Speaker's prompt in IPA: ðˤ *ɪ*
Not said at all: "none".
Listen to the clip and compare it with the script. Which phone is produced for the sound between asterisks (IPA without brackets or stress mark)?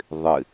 ɪ